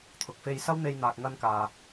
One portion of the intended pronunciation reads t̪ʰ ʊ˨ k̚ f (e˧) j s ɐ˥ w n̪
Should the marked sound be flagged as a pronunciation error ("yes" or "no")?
no